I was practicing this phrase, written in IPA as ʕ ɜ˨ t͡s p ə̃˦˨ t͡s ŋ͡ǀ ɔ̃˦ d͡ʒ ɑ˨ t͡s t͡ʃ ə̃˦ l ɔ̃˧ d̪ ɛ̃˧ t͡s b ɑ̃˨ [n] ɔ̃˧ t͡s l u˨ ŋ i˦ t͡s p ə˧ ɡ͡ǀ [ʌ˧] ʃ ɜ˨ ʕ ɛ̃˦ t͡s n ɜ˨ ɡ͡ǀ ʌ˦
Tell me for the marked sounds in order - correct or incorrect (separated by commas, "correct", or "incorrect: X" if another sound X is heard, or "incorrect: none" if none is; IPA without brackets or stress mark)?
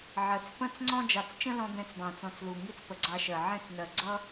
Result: incorrect: t͡s, incorrect: ɑ˧